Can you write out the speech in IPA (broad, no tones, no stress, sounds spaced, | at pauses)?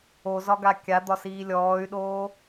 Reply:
o z ɒ ɡ a kʲ a d̪ ɒ s iː lʲ ɔː y̯ ɗ oː